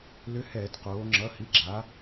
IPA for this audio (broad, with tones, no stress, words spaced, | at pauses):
lʏ˧˥hɛː˧˩˧dqoː˩˧ ŋ͡ǁʌ˩˧˩hi˩˧˩ɡ͡ǁa˩˧